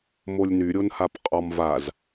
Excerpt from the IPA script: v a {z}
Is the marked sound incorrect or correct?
correct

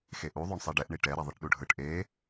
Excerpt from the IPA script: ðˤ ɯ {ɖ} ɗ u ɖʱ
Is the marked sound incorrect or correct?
incorrect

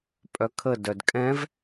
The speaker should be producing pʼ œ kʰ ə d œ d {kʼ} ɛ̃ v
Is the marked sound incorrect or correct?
correct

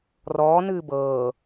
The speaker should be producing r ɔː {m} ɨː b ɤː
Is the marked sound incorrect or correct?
incorrect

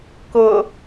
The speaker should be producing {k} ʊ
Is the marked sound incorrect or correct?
correct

